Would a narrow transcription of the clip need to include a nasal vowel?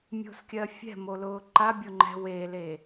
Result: no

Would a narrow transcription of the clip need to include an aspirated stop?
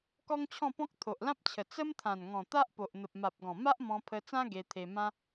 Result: yes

